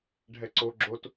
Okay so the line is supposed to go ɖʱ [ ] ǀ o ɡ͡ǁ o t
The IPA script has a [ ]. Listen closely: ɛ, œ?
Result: ɛ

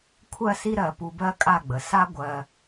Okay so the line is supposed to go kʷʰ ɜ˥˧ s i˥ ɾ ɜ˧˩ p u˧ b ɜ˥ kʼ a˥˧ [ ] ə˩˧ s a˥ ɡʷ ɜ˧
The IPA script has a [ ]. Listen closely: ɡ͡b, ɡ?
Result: ɡ͡b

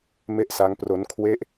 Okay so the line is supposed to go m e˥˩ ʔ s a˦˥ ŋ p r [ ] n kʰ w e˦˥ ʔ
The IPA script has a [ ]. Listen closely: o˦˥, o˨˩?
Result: o˦˥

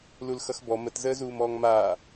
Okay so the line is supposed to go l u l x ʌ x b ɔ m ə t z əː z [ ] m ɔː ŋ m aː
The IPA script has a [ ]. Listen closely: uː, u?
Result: uː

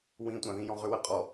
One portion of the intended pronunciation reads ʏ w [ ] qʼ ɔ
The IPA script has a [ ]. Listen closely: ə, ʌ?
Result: ə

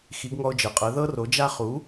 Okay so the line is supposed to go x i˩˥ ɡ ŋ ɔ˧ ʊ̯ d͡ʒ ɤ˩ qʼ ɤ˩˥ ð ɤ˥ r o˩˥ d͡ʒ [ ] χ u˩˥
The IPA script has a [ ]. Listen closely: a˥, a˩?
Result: a˥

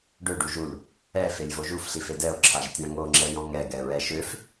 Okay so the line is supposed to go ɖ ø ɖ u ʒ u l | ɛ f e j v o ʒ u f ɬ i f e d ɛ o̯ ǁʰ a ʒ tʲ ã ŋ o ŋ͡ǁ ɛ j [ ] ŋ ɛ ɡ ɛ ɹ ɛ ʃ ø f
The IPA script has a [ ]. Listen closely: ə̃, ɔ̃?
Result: ɔ̃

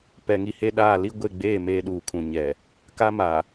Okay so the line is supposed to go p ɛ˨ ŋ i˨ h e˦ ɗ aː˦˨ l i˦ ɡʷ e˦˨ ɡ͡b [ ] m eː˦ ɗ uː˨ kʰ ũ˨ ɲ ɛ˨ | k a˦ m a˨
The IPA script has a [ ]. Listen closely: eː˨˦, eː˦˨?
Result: eː˦˨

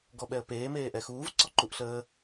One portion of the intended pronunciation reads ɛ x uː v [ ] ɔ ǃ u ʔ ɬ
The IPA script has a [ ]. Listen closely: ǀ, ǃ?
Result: ǀ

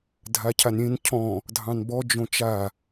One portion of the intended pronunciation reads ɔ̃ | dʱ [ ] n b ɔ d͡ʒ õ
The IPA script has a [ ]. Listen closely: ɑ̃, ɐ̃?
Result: ɑ̃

